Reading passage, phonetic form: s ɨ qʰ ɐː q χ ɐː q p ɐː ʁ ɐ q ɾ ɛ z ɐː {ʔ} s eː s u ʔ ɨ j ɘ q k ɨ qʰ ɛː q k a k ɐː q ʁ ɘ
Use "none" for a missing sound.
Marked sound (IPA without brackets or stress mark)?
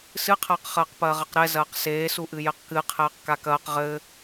q